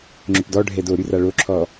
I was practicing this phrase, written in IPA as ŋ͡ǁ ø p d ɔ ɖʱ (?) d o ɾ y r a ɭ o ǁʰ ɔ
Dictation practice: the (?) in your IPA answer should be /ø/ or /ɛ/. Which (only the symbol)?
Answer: ɛ